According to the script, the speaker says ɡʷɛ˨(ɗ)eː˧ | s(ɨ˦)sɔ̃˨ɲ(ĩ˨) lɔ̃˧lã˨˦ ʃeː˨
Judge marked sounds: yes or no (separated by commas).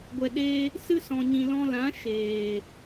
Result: yes, yes, yes